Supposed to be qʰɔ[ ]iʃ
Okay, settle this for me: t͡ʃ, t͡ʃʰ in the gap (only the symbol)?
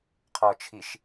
t͡ʃʰ